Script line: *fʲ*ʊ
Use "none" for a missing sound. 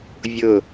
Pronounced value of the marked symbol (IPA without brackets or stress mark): vʲ